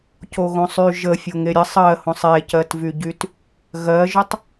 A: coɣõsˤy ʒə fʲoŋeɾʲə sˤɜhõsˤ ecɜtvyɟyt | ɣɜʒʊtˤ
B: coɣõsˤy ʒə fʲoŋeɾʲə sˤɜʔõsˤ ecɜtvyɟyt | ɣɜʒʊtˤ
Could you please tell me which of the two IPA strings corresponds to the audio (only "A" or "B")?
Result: A